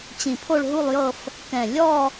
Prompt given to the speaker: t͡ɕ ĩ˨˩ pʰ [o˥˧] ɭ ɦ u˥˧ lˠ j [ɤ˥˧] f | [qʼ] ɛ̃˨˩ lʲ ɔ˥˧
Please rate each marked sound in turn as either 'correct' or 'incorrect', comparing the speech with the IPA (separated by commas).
correct, correct, incorrect